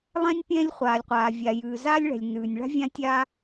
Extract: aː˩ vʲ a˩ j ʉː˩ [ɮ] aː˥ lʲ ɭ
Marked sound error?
yes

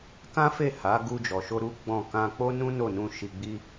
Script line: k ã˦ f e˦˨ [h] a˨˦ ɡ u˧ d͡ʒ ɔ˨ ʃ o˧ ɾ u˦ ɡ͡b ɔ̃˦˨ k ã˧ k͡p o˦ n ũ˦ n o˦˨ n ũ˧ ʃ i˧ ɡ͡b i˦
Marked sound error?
no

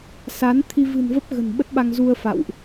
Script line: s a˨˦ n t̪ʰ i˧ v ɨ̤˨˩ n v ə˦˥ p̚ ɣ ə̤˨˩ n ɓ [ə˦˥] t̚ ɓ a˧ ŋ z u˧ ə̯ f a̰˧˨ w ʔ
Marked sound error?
no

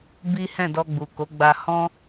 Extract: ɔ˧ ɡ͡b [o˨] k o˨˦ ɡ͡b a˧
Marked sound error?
yes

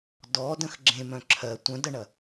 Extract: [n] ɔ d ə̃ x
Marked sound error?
yes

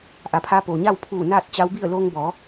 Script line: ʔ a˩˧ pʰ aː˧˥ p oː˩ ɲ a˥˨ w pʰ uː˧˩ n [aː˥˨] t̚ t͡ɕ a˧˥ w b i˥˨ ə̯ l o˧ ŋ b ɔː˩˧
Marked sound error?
no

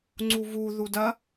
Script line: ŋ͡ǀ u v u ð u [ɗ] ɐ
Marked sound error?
yes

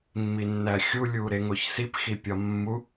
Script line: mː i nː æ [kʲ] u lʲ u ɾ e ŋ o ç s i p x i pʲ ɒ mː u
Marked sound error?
yes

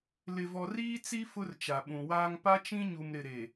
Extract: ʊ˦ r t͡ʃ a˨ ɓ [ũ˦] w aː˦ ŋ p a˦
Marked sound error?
yes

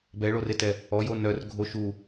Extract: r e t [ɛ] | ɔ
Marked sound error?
no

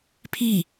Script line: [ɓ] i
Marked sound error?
yes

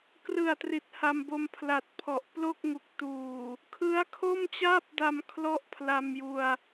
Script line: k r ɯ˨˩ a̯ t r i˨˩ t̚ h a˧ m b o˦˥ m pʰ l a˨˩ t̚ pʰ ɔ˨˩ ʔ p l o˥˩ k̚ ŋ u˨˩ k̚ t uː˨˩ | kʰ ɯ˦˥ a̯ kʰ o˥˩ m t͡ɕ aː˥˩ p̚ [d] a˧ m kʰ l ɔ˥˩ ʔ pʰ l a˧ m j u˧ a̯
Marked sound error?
no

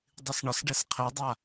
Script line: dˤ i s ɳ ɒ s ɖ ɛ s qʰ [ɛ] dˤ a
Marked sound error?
no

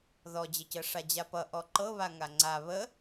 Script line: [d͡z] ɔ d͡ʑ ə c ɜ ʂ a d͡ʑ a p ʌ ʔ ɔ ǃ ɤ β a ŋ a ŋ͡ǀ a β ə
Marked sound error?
yes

